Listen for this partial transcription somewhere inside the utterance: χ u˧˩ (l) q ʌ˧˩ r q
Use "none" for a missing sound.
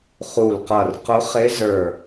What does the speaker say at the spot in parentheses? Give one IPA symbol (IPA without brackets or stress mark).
l